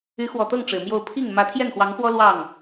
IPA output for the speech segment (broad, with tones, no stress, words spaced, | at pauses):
y˧˥xwɔ˨˩t̪ɤ˥˩ŋ ʈ͡ʂɻ̩˨˩mjo˥˧ʊ̯ pʰi˥˩ŋ mä˧˥t̪ʰjɛ˥˩nxwɑ˧˥ŋxwɔ˥ lwɑ˥˩ŋ